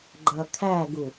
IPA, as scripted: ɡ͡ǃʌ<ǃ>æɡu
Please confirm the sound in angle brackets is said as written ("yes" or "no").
no